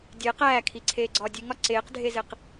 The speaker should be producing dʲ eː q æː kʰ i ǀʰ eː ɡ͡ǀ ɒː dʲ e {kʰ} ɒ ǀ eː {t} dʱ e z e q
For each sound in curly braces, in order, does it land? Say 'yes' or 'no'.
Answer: no, no

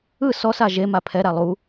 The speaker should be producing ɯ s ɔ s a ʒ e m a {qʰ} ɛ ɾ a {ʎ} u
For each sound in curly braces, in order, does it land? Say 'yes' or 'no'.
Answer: no, no

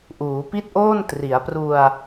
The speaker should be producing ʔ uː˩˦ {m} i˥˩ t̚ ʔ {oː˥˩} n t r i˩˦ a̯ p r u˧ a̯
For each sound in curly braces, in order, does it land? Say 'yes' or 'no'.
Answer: no, yes

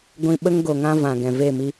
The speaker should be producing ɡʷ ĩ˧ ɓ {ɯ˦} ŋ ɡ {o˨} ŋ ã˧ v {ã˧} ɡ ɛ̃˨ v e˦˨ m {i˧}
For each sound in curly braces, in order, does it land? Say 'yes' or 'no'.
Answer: no, yes, no, yes

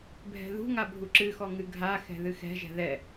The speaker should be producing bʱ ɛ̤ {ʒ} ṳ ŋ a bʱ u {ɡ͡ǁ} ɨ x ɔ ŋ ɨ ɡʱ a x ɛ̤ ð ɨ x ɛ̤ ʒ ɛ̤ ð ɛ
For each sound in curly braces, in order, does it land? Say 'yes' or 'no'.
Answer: no, no

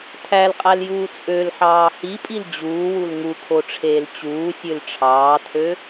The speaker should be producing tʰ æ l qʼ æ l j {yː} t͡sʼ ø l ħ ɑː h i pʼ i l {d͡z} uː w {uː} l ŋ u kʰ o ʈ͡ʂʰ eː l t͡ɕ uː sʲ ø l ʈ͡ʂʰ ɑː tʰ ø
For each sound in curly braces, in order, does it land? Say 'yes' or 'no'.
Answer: no, no, no

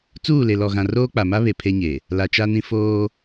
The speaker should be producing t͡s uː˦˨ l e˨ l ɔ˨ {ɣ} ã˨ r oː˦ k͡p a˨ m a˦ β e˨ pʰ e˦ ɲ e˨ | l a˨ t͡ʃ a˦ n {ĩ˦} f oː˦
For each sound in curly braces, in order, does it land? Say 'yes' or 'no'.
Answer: yes, yes

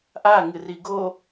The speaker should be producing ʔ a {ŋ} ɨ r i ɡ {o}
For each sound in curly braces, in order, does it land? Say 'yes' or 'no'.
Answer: yes, yes

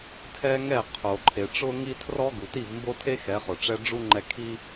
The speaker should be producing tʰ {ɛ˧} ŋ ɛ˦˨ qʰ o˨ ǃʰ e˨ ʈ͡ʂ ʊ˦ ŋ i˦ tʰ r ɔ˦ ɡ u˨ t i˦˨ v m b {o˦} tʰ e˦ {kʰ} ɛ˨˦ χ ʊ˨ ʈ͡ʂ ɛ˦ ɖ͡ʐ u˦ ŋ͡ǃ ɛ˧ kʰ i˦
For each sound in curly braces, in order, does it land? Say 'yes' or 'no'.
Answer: no, yes, no

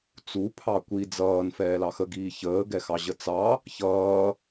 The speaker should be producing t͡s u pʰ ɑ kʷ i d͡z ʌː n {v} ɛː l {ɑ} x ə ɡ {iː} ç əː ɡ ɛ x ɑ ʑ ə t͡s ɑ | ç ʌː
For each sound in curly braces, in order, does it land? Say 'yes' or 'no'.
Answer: no, yes, yes

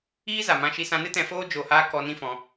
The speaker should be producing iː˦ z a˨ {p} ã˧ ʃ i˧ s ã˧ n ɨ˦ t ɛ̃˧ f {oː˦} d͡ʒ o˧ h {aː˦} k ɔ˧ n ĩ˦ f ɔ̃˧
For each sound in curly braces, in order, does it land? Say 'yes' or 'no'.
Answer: no, yes, yes

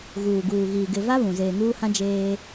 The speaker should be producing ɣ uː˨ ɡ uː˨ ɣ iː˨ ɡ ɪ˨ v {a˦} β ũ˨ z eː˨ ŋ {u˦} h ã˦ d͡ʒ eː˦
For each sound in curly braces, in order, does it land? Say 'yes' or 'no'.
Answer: yes, no

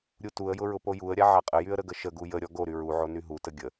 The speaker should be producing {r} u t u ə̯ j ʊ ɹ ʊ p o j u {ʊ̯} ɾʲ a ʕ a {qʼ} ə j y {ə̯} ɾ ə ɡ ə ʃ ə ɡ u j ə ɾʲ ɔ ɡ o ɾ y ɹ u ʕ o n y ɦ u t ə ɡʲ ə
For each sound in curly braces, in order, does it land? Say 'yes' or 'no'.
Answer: no, no, yes, yes

